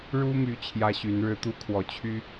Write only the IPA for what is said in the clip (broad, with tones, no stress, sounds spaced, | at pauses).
ɻ u˦ m y˨˦ t͡ɕʰ j ä˦ ɕ y˨˦ n ɻ ɻ̩˦ t̪ u˦ kʰ w ɔ˨˩ t͡ɕʰ y˦